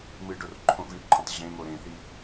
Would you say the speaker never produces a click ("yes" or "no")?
no